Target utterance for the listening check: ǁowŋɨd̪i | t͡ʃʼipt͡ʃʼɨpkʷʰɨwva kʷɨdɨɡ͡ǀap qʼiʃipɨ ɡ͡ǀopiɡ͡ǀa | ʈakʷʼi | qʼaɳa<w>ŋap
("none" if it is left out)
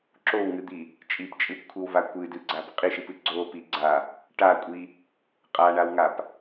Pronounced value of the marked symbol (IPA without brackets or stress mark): w